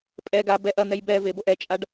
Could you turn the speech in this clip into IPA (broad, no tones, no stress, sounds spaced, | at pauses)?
pʼ ɛ ɡ a b ɛ ʔ ɐ n̪ ɛ j b ɛ v e b o ʔ ɛ t͡ʃʼ a ɖ